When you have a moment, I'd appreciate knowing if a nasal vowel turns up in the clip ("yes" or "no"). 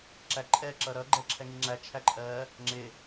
no